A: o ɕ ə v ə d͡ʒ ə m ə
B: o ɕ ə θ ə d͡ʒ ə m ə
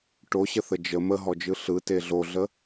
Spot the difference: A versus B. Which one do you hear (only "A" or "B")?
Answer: B